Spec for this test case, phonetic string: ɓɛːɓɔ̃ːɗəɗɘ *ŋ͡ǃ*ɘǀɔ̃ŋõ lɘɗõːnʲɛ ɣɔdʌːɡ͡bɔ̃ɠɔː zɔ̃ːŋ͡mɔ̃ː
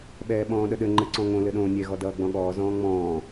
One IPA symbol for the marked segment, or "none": ŋ͡ǃ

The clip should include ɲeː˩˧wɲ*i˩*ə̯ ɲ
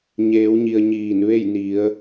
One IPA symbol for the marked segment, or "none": i˩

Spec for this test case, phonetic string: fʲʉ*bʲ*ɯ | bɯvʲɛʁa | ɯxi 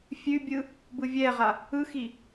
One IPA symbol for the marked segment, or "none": bʲ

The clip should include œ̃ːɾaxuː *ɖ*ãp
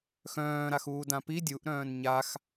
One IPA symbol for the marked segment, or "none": d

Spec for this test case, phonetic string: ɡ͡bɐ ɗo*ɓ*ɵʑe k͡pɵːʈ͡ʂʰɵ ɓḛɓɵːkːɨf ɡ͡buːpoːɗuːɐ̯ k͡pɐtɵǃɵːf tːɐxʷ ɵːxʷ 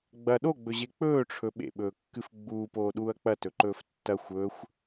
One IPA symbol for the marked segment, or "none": ɡ͡b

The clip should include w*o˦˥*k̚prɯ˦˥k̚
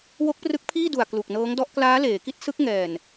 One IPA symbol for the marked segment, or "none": o˦˥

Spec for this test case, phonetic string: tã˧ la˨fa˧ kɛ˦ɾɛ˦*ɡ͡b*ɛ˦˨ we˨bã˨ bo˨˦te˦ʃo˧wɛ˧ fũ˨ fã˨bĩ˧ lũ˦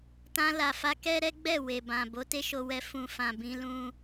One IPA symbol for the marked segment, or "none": ɡ͡b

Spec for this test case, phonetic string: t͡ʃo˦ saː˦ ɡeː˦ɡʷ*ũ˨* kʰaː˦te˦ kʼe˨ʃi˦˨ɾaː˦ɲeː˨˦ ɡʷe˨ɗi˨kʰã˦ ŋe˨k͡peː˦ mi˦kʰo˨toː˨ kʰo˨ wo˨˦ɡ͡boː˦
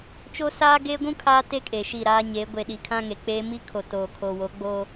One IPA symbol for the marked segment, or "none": ũ˦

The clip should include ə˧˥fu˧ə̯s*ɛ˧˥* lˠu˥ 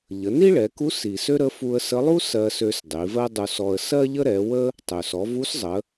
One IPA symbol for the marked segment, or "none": ə˧˥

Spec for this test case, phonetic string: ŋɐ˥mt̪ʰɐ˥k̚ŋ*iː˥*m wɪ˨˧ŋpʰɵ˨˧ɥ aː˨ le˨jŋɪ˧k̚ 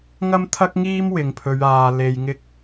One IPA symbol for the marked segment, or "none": iː˥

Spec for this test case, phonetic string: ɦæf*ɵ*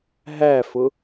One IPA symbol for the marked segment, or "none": ʊ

